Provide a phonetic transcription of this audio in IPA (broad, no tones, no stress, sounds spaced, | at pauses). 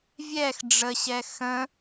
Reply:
vʲ ɛ x ɖ͡ʐ ə ɕ ɛ x ə̃